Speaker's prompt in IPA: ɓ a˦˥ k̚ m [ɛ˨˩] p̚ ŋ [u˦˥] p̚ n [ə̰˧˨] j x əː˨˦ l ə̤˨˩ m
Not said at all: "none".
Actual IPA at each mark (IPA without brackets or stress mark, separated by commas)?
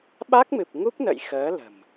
ɨ˨˩, u˦˥, ə̰˧˨